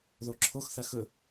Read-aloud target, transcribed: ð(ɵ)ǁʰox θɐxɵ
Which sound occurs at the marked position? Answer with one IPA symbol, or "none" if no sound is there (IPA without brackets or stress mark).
o